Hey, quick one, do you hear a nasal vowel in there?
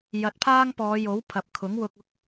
no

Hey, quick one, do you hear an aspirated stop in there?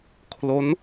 yes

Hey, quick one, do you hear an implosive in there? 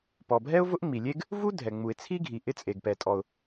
no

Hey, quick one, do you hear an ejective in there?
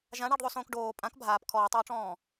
yes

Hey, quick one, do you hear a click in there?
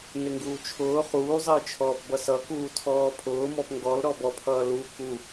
no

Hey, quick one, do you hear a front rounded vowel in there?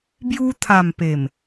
no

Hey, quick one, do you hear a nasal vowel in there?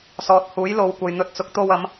no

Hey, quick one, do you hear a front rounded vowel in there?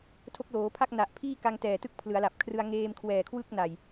no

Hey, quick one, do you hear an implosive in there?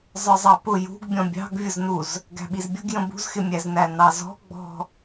yes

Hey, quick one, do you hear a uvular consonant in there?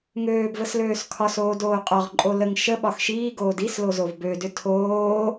yes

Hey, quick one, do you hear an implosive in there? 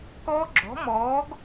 no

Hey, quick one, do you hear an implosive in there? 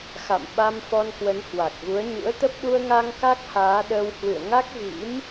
yes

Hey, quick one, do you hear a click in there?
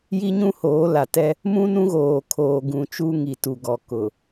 no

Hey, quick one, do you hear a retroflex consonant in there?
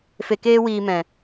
no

